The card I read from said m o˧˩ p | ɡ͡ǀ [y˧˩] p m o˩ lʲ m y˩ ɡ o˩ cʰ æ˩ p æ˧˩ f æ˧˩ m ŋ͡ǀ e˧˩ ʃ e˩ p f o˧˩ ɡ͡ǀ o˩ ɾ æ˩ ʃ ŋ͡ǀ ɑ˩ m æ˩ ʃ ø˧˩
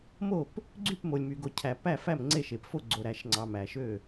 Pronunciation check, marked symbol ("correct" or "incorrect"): correct